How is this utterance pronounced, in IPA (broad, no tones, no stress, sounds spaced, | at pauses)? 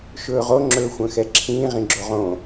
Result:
ʃ ɵː ʁ o ŋ͡ǁ ɵː xʷ œ̃ x ɛ ǁʰ ĩː ʁ ĩ ɡ͡ǁ o ʁ õ